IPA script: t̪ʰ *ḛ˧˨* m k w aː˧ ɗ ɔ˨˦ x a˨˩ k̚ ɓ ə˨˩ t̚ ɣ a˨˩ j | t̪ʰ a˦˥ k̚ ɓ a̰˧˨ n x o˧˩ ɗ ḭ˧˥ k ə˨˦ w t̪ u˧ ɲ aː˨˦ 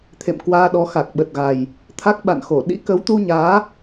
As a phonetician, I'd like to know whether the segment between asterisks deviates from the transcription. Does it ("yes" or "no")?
no